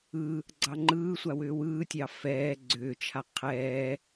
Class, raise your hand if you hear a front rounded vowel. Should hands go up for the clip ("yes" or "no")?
yes